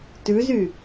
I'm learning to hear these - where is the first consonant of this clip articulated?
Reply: tongue tip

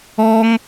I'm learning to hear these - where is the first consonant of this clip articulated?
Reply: velum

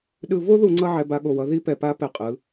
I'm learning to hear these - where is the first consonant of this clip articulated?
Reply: tongue tip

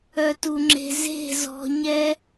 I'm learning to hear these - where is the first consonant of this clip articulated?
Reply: tongue tip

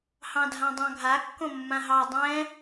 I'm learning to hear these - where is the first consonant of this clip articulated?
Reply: throat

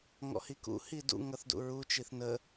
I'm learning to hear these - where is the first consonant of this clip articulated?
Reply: velum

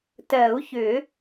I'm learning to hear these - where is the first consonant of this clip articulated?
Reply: tongue tip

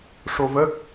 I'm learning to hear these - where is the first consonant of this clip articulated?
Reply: retroflex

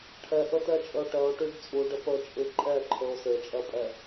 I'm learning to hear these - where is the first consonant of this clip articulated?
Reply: retroflex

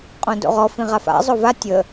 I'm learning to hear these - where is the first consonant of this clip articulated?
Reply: uvula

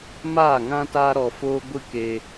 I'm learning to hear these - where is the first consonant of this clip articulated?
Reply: lips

